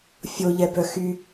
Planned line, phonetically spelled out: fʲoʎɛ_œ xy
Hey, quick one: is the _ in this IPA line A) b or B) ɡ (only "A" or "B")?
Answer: A